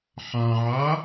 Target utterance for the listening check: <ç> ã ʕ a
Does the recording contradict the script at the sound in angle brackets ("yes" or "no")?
yes